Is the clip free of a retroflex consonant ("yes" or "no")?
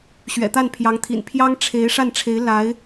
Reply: no